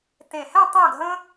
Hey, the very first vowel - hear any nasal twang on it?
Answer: yes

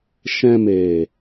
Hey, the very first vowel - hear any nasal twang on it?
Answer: yes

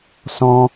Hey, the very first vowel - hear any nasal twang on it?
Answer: yes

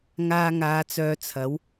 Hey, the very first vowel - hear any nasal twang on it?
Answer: no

